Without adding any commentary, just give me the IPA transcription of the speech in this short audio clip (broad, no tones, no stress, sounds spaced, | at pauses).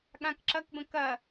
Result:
ɠ ã k ǁ ɐ k b ə̃ k ɐ